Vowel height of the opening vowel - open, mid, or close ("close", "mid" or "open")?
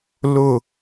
close